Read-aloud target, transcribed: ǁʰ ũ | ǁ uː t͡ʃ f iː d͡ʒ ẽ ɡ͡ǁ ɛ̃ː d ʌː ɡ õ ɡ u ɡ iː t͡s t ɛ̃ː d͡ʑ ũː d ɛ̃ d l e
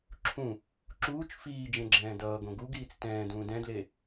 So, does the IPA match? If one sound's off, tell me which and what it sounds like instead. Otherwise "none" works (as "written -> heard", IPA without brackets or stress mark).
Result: d͡ʑ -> d